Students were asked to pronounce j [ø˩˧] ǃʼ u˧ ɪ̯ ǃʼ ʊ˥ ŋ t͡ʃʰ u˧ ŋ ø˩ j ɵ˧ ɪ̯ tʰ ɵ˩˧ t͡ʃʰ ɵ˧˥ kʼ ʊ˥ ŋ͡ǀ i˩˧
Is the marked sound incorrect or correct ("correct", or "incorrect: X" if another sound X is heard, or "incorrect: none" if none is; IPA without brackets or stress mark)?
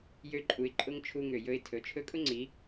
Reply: incorrect: ø˥